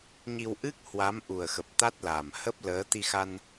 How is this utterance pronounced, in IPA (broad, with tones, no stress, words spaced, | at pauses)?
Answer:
ɲi˧wʔɨ˦˥k̚ hwa˨˦mʔu˨˩ə̯xə˨˩p̚ t̪a˦˥t̚laː˨˩m hə˦˥p̚ləː˨˦ t̪i˧xa˧n